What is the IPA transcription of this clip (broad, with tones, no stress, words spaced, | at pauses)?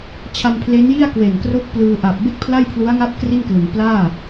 t͡ɕʰa˧mpʰle˦˥nji˥˩a̯ kwe˨˩nkro˥˩k̚ plɯː˧ʔa˨˩p̚ be˥˩k̚pʰla˥˩jpʰlu˦˥a̯ŋa˥˩p̚ kri˥˩nklɯ˩˦ŋ plaː˥˩